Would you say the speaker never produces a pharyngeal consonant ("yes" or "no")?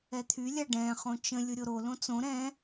yes